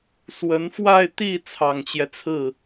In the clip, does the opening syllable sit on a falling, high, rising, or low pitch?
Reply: rising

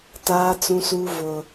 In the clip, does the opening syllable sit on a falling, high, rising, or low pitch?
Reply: high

